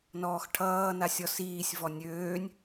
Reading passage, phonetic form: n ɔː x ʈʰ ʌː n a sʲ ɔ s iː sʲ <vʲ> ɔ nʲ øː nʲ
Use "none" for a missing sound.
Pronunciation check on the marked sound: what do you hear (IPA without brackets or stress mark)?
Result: v